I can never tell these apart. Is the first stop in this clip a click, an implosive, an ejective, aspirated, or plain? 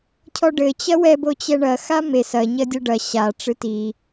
aspirated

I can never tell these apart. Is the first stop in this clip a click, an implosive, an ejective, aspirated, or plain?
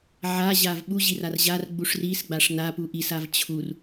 implosive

